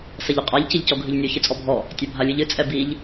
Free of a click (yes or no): yes